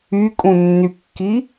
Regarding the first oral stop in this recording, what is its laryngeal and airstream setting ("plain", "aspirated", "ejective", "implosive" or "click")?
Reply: ejective